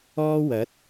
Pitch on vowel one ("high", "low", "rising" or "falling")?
high